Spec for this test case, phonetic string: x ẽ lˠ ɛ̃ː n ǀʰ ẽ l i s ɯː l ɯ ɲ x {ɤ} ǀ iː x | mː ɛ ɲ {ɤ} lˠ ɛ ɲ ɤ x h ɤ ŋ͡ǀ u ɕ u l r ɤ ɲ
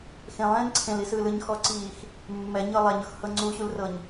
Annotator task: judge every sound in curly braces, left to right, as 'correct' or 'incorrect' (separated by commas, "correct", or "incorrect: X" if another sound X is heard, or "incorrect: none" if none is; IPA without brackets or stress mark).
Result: incorrect: ɔ, correct